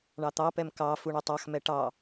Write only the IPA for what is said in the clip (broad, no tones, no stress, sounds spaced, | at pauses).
ɳ ɑ t̪ ɑ p ɛ m k ɑ f u ɳ ɵ tˤ ɑ x m ɛ ʈ ɑ